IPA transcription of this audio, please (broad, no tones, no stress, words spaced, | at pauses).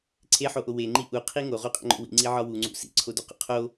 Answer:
ǀʰeħoʔo weŋ͡ǃi ʔuqʰi ŋoʁuqʼḛŋ͡ǃo̰ wḭŋ͡ǀiʕɒ wuŋ͡ǀṵ sḭǀʰoduqṵ qʰo